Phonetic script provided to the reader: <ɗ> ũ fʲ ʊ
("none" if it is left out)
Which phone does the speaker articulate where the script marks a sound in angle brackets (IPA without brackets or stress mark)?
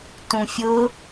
t